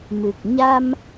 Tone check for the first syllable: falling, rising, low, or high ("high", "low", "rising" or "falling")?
low